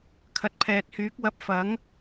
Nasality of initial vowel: oral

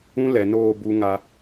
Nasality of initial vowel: nasal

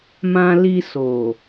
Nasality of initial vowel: nasal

